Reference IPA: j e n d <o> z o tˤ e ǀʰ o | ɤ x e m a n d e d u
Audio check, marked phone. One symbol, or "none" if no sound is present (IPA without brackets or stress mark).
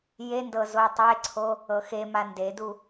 ɤ